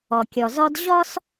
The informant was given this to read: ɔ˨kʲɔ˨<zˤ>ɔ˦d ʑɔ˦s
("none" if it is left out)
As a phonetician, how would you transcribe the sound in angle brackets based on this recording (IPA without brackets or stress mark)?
z